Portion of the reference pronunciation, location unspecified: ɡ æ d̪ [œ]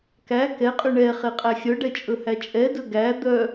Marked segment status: correct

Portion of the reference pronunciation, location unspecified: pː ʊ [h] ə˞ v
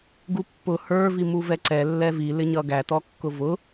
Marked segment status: correct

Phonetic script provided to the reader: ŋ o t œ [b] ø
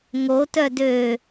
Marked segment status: incorrect: d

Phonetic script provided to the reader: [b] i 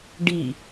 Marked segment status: incorrect: ɖ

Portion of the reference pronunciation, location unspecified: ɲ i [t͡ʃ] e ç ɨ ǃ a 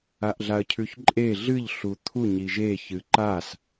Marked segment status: incorrect: ʒ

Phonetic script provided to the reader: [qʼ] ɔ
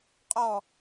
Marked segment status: correct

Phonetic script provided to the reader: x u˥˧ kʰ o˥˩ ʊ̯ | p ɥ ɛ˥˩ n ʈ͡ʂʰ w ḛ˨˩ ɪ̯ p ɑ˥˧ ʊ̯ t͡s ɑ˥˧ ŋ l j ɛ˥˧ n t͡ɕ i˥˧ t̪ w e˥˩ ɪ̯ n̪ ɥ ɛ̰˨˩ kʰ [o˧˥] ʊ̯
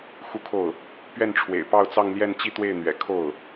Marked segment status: incorrect: o˥˩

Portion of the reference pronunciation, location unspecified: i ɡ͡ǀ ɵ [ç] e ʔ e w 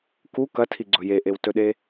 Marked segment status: incorrect: j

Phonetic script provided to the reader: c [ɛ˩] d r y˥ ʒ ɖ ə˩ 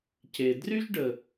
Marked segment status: incorrect: e˩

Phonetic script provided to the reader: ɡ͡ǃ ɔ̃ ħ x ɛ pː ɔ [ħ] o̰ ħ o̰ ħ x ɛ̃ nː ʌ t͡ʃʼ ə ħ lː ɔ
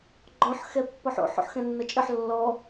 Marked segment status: correct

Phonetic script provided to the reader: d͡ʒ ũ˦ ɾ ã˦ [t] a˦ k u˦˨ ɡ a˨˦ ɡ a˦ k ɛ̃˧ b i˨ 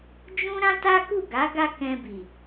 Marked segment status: correct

